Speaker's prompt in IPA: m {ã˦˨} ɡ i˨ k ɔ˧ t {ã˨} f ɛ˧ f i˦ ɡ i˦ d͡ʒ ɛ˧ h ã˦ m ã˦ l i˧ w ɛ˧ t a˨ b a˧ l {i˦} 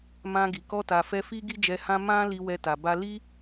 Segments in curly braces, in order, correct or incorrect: incorrect: ã˧, incorrect: a˨, correct

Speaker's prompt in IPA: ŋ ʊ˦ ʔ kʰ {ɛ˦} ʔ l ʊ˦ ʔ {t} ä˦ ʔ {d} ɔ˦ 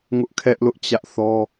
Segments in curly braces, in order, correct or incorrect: correct, incorrect: t͡ɕ, incorrect: θ

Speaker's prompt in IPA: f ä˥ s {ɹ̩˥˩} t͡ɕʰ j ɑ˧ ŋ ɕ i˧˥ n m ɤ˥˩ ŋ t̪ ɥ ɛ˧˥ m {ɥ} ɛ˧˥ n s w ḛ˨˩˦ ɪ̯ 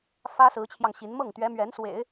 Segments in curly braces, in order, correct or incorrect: incorrect: ɹ̩˧˥, correct

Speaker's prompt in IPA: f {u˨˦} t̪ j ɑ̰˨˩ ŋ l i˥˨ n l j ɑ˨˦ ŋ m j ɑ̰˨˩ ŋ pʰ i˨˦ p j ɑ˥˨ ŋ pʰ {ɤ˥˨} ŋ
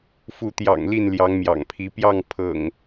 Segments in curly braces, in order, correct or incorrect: correct, incorrect: ɤ̰˨˩

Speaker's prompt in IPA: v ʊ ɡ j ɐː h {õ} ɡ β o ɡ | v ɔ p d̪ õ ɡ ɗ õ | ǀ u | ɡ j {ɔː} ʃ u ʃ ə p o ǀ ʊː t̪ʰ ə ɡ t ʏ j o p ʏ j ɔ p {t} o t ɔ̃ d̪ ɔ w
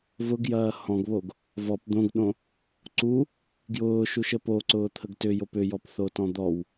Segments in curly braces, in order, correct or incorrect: incorrect: ɔ̃, incorrect: ʊː, incorrect: θ

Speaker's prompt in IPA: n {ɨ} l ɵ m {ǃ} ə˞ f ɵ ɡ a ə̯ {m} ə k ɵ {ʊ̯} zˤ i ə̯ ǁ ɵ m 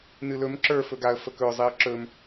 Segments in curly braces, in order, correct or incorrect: correct, incorrect: ǁ, incorrect: f, correct

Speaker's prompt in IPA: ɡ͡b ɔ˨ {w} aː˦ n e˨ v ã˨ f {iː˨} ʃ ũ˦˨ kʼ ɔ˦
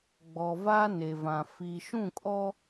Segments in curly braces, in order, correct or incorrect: incorrect: v, correct

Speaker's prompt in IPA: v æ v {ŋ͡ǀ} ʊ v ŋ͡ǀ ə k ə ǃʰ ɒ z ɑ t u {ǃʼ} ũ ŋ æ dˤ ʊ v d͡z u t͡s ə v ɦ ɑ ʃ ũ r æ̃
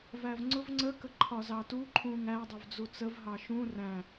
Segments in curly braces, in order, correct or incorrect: correct, incorrect: ǃʰ

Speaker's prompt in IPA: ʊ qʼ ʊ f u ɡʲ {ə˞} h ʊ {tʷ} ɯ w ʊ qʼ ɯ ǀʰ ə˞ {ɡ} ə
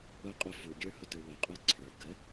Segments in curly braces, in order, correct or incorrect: correct, incorrect: t, correct

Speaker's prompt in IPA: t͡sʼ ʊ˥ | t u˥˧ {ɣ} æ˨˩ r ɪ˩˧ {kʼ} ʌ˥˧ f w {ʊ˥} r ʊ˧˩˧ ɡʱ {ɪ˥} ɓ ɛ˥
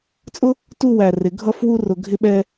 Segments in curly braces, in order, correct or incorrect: incorrect: w, incorrect: ɡʱ, incorrect: u˥, correct

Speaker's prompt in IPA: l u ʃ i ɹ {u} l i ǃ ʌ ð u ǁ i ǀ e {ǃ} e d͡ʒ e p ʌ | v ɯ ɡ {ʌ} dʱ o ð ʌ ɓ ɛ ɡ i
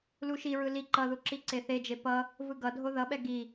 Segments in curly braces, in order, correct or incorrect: incorrect: ɯ, incorrect: θ, correct

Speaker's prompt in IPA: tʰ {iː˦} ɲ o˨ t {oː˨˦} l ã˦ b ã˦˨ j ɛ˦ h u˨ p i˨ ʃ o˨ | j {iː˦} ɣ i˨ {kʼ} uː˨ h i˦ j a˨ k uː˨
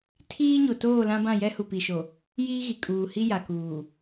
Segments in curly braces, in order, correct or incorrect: correct, incorrect: oː˦˨, correct, correct

